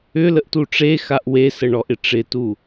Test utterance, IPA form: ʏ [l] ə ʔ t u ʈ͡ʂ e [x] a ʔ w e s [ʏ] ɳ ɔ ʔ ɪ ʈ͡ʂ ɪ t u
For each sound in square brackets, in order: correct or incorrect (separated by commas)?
correct, correct, incorrect